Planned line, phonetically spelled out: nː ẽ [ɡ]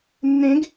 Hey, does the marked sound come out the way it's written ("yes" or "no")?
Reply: yes